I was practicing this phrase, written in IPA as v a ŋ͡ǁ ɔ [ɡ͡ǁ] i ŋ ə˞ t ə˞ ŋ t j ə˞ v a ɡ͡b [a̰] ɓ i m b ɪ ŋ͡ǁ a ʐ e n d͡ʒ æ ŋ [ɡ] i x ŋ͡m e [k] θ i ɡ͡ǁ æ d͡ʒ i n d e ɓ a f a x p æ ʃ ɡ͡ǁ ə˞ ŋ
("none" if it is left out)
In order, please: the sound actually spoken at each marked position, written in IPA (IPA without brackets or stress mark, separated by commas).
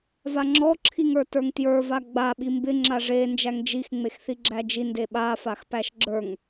ǁʰ, a, d͡ʒ, x